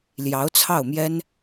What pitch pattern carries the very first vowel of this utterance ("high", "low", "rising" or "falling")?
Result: rising